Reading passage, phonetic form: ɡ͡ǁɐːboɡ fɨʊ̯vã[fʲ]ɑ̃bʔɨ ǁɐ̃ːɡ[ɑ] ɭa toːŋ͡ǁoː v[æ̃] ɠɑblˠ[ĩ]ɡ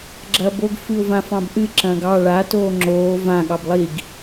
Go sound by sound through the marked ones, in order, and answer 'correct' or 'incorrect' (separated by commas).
incorrect, correct, incorrect, incorrect